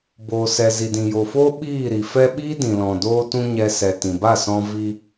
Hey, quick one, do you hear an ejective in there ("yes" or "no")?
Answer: no